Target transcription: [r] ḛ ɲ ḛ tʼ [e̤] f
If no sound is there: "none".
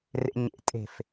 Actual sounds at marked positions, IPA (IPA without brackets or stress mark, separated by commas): r, e̤